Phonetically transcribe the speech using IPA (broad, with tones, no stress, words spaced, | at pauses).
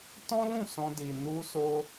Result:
tɔ̃˦lũ˦˨ sɔ̃˧di˨nu˧so˧